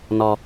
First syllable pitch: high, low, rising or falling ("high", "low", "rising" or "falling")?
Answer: low